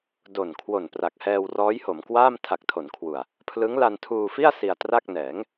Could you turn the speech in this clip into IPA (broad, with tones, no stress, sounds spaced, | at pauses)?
d o˨˩ n kʰ w o˨˩ n p r a˨˩ k̚ h ɛː˧ w r ɔː˦˥ j h o˩˦ m k w aː˥˩ m tʰ a˨˩ k̚ tʰ o˩˦ n kʰ w u˨˩ a̯ | pʰ l ɯ˦˥ ŋ l a˧ n tʰ uː˧ f i˥˩ a̯ s i˧ a̯ t r a˥˩ k̚ n ɛː˩˦ ŋ